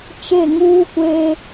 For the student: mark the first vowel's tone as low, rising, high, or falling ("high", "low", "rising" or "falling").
falling